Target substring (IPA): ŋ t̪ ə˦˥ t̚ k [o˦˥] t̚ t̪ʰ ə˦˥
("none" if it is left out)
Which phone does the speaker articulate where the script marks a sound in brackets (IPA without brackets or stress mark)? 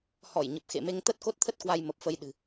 o˦˥